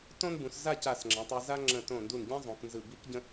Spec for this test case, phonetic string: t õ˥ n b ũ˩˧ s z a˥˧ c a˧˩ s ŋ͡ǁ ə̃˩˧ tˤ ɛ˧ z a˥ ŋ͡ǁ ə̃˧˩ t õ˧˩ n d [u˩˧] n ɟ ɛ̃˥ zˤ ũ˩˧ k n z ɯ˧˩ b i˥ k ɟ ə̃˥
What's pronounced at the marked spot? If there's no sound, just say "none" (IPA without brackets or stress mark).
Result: u˧˩